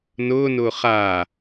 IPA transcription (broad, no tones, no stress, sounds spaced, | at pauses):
n ʊː n ʊː χ aː